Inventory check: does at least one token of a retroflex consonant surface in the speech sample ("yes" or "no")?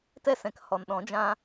no